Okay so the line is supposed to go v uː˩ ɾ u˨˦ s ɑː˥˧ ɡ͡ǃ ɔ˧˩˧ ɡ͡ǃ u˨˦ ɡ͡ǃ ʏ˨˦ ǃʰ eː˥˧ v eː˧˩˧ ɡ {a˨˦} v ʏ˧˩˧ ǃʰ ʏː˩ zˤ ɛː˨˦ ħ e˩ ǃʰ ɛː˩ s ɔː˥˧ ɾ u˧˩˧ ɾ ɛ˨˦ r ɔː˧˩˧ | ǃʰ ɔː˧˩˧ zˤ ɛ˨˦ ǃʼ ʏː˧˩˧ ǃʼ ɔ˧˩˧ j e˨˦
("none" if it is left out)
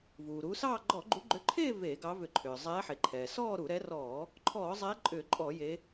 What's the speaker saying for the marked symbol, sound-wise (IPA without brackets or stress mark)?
ɑ˨˦